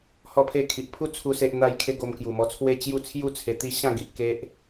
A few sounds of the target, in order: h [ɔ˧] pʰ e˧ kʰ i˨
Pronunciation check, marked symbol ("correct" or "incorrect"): correct